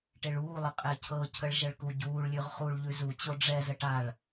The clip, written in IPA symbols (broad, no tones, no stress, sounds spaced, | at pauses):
ʈ e ɭ uː lˠ ə qʼ ɛ cʰ ɤ cʰ ə ɭ ʒ ə ɭ k u ɟ uː ɭ lʲ ʉ ʁ χ u ɭ ʎ ʉ z u t͡ɕ o ɖ͡ʐ ɛ z ə ʈ a ɭ